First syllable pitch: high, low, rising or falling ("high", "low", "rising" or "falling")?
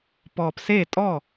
low